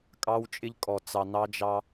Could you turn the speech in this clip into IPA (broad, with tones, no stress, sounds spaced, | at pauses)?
kʼ ɑ˦ w t͡ʃʼ ɪ˦ ʎ kʼ ɔ˨ t͡s ɑ˨ n ɑ˦ d͡ʒ ɑ˦